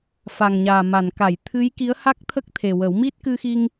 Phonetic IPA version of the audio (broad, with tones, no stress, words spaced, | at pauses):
fa˨˩ŋɲaː˨˩ma˨˩˨n ka˨˩˨j t̪ʰɨ˧˥j ki˧˥ə̯ha˦˥k̚t̪ʰə˦˥k̚t̪ʰe˨˩ wə˨˩˦wmi˦˥t̚ kɨ˧xi˧ŋ